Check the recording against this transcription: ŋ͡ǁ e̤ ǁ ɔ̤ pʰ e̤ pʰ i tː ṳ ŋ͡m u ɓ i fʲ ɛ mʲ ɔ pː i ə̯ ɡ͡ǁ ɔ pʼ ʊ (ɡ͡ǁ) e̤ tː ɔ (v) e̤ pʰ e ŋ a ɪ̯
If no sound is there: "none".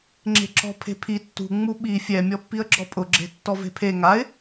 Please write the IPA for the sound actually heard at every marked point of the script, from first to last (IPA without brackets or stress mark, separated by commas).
ɡ͡ǁ, v